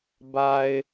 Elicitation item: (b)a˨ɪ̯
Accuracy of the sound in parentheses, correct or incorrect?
correct